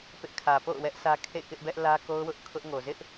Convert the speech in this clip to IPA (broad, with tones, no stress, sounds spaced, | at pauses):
p ɪ˦ ʔ kʰ ä˨ p o̰˦˨ ʊ̯ w ɛ˦ ʔ sʰ ä˦ kʰ ḛ˦˨ k ɪ˦ ʔ b ɛ˦ ʔ l ä˦ k o˦ ʊ̯ w ʊ˦ ʔ kʰ ʊ˦ ʔ ŋ o˨ z ɪ˦ ʔ